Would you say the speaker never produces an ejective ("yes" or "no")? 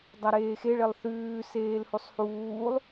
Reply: yes